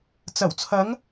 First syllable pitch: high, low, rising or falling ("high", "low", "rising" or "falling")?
low